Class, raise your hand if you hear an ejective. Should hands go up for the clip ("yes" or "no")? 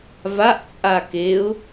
yes